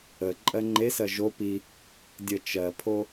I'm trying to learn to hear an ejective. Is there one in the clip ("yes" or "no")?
yes